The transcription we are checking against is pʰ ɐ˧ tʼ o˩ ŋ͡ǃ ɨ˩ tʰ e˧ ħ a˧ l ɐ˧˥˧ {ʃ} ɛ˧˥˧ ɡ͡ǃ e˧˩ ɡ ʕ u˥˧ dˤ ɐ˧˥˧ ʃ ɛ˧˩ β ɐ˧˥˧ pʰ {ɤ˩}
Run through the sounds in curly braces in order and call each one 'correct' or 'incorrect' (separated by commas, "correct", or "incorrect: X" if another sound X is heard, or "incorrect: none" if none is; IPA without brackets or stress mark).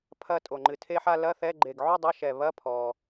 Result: incorrect: θ, incorrect: ɔ˩